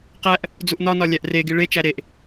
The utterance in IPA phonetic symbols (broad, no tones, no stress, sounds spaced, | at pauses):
q æ ʔ | d͡z u ʔ n ɒ n ɒ lʲ æ ʔ r e ɡ i ɭ e t͡ʃ æ ɾ e ʔ